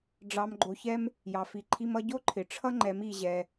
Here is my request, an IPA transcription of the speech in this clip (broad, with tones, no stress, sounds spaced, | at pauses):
ɖ͡ʐ ɑ˧ m ɡ͡ǃ o˧ ç ɛ˦ m | j ɑ˧ f i˧ ǃʰ i˦ m ʌ˦ ɟ o˦ ǃʰ ɪ˨ ʈ͡ʂʰ ʌ˦ ŋ͡ǃ ɛ˨˦ m i˧ ʑ ɛ˧